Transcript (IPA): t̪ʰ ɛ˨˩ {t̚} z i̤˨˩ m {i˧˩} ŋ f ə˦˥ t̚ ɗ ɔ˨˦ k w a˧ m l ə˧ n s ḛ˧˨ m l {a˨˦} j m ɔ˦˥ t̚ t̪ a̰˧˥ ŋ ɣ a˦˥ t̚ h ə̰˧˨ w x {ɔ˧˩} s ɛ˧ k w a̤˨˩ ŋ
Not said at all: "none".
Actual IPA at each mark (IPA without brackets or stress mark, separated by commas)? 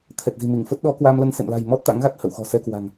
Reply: t̚, i˧˩, a̤˨˩, ɔ̤˨˩